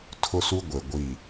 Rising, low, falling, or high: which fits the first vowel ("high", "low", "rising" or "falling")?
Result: high